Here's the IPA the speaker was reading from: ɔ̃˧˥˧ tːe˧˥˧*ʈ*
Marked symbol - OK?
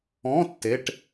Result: yes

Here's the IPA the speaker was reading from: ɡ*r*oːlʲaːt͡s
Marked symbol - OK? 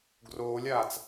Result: yes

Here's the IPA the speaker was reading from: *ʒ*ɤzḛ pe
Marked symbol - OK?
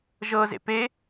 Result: yes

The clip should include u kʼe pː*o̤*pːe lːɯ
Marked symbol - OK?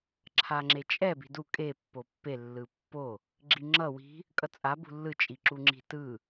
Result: no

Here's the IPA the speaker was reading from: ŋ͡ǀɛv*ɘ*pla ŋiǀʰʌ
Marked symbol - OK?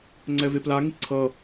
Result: no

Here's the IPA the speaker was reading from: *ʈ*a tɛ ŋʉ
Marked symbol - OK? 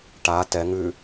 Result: yes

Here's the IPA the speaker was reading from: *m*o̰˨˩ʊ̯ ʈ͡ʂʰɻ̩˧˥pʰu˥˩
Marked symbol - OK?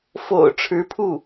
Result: no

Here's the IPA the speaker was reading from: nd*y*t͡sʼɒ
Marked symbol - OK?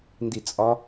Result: no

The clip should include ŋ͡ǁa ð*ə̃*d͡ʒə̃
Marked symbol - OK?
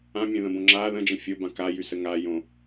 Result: yes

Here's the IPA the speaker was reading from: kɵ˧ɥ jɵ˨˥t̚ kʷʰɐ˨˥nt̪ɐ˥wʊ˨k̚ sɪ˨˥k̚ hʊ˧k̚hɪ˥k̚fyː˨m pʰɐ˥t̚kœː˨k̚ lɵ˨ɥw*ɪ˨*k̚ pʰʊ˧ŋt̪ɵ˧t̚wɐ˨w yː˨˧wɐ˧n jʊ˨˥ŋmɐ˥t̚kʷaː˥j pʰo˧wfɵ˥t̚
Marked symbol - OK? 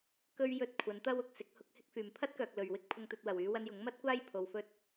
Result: no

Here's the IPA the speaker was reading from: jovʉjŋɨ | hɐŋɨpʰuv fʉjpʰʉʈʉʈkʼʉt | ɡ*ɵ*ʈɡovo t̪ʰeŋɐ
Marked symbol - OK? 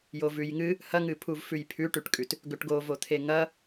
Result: yes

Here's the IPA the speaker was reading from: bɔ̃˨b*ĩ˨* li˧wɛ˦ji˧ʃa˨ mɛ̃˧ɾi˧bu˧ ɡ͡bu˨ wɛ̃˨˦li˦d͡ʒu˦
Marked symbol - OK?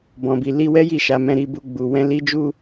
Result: no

